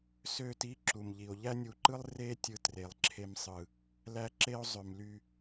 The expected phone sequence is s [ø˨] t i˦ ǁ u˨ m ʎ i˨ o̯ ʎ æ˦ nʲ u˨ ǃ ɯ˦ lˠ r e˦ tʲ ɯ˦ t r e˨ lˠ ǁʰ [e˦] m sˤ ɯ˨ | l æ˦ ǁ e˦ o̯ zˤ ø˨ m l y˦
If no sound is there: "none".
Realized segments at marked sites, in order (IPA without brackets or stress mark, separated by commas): ø˦˨, e˦